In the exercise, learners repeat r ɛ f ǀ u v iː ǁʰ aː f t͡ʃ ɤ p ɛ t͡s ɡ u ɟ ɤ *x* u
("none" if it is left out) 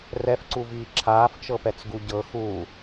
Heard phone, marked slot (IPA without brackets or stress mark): x